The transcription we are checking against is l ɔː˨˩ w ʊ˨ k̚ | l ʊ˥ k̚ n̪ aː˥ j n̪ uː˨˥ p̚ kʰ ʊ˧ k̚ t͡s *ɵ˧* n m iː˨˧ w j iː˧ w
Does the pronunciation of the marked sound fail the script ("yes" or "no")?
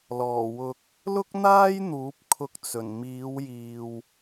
yes